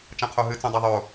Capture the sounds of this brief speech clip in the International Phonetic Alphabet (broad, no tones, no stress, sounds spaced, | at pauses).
t͡ʃ ã qʰ o ɦ ɨ t͡s ũ dˤ a ðˤ o